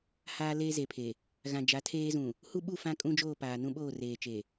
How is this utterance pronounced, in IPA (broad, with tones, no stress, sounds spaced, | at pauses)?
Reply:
h aː˦ l eː˦ z e˨ pʰ e˨ | ɣ ã˨ d͡ʒ a˨˦ tʰ eː˦ z ũ˨ | h u˦ ɓ u˦˨ f ã˦ kʼ ũ˦ d͡ʒ oː˦˨ p aː˨ n ũ˦ ɓ oː˦˨ r eː˨ t͡ʃ e˨